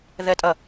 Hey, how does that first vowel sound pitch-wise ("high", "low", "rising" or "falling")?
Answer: falling